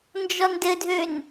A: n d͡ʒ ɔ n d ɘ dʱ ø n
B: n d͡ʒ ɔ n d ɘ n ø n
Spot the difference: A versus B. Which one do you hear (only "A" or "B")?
A